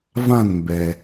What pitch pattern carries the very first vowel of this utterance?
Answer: falling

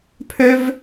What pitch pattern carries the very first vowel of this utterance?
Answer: high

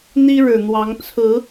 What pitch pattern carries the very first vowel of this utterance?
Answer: high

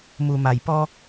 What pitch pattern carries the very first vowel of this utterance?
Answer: low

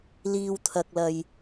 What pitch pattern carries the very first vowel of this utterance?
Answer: low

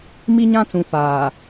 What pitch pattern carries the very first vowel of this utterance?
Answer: high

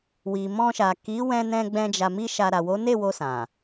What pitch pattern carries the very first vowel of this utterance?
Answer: low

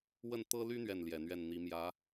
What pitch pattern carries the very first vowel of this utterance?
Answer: falling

